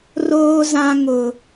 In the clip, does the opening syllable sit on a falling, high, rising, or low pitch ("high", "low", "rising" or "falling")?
low